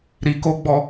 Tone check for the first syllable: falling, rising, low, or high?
low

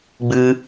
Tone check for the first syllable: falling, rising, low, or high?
high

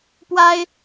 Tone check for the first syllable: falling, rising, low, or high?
high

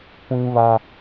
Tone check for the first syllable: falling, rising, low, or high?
high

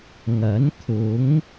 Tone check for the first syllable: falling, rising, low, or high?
rising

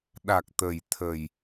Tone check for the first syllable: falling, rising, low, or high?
low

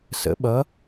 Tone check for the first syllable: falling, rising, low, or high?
rising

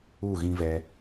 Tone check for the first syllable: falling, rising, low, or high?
falling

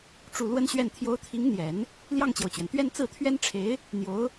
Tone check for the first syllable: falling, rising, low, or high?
falling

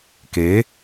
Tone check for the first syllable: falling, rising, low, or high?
rising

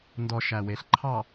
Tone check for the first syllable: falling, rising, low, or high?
low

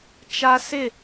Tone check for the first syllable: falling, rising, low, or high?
high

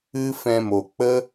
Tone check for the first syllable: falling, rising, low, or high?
high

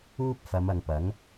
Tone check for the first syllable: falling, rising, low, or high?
high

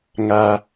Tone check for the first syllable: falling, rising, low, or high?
low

